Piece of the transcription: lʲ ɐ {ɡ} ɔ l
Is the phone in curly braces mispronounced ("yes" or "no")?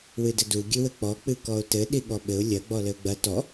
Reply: yes